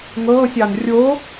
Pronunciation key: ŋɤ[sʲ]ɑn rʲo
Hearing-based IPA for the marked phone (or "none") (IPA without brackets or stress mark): sʲ